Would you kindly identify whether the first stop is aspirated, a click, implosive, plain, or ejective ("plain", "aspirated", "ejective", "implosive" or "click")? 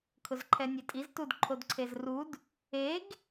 aspirated